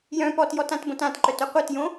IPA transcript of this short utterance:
j œ̃ p ɔ t j ɔ t ã t b õ t ã t ǃ œ t œ qʷ ɤ t j õ

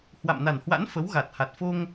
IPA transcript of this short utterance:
h w a̰˧˨ m n a˨˩ n h w a̰˧˥ n f ə˨˦ w ɣ a˨˩ t̚ h a˨˩ t̚ f o˧ ŋ

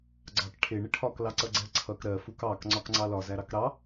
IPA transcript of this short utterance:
ɡ͡ǀ ɑ k ʈʰ ɪ ɳ ɪ ʈʰ ɒ k l ɑ ǀ ʌ ɡ͡ǀ ɜ ǀʰ ʌ k ɾ ɜ f u k ɑ k ŋ͡ǀ ɒ k ŋ͡ǀ ɑ l ɒ z æ ɾ ɑ k ɾ ɑ

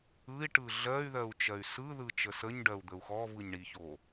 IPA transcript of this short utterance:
ɯ i̯ ʈ ɯ ɮ ɜ y̯ ð ɜ u̯ t͡ʃ ɜ y̯ s ɯ ð ɯ t͡ʃ ə s ə ɲ ɖ ɜ u̯ d̪ ə u̯ x ɔ v ɯ ɲ ɳ i ç o

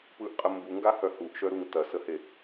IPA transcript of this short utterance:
p ɯ ʔ qʼ ə m b u ŋ ɡ a h œ h u ʔ ʃ œ ɾ u ŋ t ɐ s ə h e

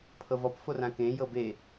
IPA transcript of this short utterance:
pʰ ɤ v ɔ p f o r ã k ẽ j ɤ b e

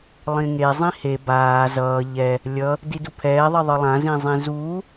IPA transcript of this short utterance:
lˠ ĩ ŋ e zˤ ĩ h e b aː z ʌː ʎ ɛ | lʲ ʌ | d i d u pʰ ɛː ðˤ i ðˤ ɯ lˠ ã z ĩ zˤ ĩ z uː

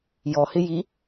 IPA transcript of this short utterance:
j ɔ h ɪ j i

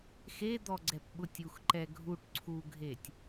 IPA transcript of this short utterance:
x e d̪ ɔ ɡ͡ǀ ɛ p ɓ ʊ tʲ u x ǃ ɛ ɡʱ u ʈ ǀʰ u ɡʱ e tʲ

